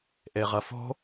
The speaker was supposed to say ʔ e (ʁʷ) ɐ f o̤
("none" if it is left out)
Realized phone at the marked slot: ʁ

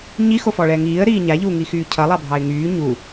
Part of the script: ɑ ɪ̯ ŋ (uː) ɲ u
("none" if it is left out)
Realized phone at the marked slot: yː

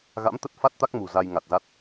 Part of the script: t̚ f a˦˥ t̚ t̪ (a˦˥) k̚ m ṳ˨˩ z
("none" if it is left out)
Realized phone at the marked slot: a˦˥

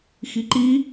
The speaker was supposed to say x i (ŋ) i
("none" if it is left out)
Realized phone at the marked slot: ǃ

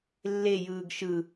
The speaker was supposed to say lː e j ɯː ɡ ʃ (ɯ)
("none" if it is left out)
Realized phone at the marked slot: ɯ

